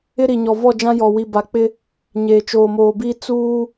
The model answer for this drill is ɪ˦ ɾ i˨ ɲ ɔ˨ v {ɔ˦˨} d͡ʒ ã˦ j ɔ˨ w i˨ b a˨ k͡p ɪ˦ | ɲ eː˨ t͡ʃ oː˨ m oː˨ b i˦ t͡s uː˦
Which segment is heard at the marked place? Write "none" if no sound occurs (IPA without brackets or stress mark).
ɔ˦˨